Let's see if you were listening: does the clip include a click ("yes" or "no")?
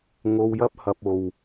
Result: no